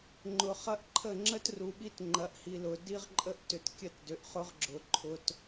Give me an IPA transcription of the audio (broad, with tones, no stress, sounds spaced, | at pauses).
ŋ͡ǃ ʊ˨ χ ɐ˦ ʔ ǃʰ ə˦˨ ŋ͡ǁ ə˦ t r u˨ ɓ i˦ t ŋ͡ǃ ɐ˨˦ ʔ h i˨ l ʊ˨ d i˦ ʁ ǃʼ ə˦ ʔ t ʏ˨ t kʲ ə˦ t d ʏ˨ ʔ χ ʊ˦ ʁ ɡ͡ǁ ʊ˨ ǃʰ ʊ˦ t